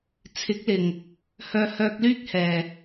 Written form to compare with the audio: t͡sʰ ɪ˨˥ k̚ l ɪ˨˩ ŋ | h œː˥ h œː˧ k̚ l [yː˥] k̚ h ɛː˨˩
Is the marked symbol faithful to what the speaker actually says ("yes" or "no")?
yes